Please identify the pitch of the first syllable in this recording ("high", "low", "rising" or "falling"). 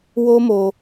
high